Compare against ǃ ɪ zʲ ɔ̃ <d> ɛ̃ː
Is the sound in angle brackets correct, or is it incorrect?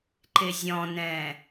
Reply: incorrect